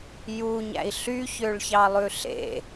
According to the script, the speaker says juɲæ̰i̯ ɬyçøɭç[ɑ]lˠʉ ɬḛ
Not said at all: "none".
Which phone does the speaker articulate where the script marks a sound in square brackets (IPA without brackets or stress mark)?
ɑ